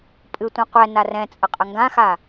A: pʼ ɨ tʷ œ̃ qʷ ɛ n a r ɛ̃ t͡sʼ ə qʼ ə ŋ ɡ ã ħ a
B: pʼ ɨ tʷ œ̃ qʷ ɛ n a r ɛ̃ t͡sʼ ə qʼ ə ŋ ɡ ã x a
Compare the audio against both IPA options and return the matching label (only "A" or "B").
B